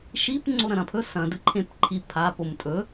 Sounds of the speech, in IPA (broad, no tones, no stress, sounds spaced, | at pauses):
ʃ i p ŋ͡ǀ o ɾ ɐ̃ ɾ ɐ̃ pʰ ɵ s ɐ̃ d ɨ ǃʰ ẽ p ǃʰ i pʰ a p o m tʼ ɵ